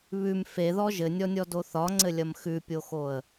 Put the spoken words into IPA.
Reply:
β ʉ m f e ð ɔ ʒ ɘ nʲ ɔ nʲ ɔ d o θ ɒ ŋ͡ǀ ɘ lʲ ɐ m x ʉ pʲ o x o ə̯

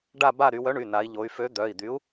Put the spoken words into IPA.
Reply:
ɖ a˦˨ b a˦˨ ɾ y˩˧ w œ˨˥ ɳ y˩˧˩ n a˩˧ i̯ ʎ o˩˧ y̯ f ø˨˥ d̪ œ˩˧˩ i̯ d̪ y˨˥ u̯

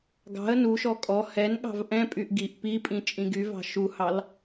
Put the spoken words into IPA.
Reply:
ɡ ɑ̤ ə̯ n u ʃ ɔ kʼ ɔ h ɛ n ɠ ɑ̤ v ʔ ɛ̃ pʼ y ʔ ɡ i ʔ p i pʼ ĩ t͡ʃʼ ĩ ɡ y v ɑ̤ ʃ u h ɑ l

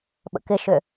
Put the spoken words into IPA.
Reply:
ɓ ə̰ k ɪ ʃ ʏ

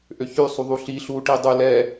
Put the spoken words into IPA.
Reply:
ʔ ø ç ʉ sˤ u ðˤ u ɬ i ɬ u ʈ i dˤ ʉ l ɛ

